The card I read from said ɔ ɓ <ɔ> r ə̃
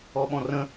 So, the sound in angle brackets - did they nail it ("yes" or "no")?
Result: no